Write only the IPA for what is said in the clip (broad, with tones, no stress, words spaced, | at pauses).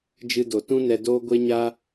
d͡ʒɨ˧do˨tũ˦ nɛ˧doː˦ ɡʷe˦ɲa˦